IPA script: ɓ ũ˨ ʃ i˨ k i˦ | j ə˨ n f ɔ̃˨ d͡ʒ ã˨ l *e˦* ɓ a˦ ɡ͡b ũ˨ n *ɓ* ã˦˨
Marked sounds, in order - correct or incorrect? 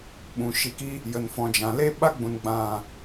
correct, incorrect: ɡ͡b

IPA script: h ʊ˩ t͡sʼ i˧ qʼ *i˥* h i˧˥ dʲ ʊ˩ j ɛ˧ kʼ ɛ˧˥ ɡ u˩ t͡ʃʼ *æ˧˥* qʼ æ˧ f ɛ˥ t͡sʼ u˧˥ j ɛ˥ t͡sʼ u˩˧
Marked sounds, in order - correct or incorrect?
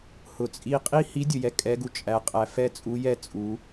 correct, correct

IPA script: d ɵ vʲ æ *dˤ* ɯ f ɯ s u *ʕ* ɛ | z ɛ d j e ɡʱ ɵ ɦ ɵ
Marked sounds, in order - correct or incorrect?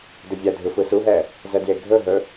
incorrect: dʱ, incorrect: ɦ

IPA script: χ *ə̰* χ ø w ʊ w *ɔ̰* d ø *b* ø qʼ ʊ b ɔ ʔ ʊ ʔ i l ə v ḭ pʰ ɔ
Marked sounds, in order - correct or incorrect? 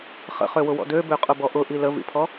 correct, correct, correct

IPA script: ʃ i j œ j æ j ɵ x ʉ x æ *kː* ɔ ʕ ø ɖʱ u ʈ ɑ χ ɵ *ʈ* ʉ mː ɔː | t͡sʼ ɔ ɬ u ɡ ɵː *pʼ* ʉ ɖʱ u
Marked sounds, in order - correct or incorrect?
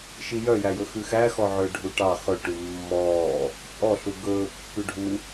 incorrect: x, correct, incorrect: pː

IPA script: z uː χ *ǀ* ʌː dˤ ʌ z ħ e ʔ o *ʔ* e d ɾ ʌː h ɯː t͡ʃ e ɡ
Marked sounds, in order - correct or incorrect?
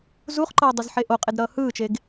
incorrect: ǃ, incorrect: qʼ

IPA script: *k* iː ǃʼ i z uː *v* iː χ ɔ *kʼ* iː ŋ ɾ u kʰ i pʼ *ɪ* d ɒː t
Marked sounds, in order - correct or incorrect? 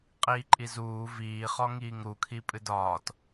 incorrect: qʼ, correct, incorrect: ŋ, incorrect: ɨ

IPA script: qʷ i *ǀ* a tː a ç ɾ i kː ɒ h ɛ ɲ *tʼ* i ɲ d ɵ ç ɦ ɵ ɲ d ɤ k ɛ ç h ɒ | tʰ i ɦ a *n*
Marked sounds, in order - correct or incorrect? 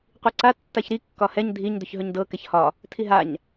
correct, incorrect: dʱ, incorrect: ɲ

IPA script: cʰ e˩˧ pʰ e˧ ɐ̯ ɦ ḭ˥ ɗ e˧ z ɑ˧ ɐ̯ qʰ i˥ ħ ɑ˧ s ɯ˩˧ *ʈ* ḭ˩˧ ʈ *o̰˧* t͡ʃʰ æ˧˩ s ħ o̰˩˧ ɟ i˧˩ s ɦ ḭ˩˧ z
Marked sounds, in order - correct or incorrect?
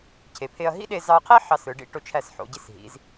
incorrect: ɖ, incorrect: o˧

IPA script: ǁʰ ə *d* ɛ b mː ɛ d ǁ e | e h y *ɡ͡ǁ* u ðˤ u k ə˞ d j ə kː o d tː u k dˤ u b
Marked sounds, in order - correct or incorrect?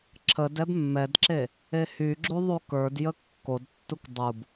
correct, correct

